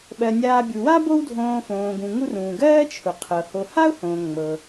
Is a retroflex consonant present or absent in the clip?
absent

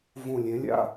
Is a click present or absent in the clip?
absent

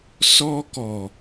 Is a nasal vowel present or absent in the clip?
absent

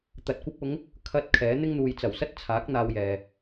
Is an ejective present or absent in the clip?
absent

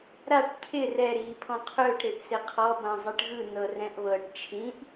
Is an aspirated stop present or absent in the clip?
present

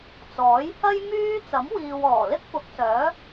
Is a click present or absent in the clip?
absent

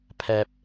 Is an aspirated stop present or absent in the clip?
present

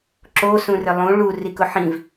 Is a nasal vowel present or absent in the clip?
present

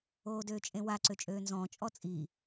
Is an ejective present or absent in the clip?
present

